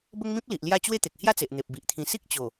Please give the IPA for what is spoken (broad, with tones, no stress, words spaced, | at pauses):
bə˦ŋ mĩ˦p̚li˨ʔ lja˥˧ t͡ɕwe˦t̪e˨k̚ hja˦t͡se˨ʔ n̪e˨p̚bi˨ʔt̪ʰĩ˧ si˦k̚t͡ɕo˨˩